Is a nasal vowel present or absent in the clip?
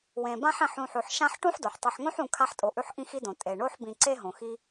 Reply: present